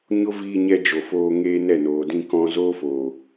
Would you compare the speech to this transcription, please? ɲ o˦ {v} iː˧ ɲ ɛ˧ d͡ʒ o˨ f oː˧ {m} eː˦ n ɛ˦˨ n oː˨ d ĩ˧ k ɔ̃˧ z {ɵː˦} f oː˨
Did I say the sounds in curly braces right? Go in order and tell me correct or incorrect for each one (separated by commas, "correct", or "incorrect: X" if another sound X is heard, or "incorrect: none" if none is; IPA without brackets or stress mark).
correct, incorrect: ŋ, incorrect: oː˦